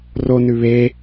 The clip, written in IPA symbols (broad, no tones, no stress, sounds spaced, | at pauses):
r o n ʉ β e